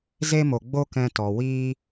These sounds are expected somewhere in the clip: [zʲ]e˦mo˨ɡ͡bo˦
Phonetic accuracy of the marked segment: incorrect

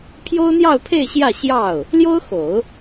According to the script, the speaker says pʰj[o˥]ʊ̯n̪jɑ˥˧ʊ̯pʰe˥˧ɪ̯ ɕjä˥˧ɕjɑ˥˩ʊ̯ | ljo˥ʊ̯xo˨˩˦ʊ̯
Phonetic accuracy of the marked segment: correct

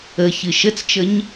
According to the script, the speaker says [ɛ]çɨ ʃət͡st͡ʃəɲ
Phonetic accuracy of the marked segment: incorrect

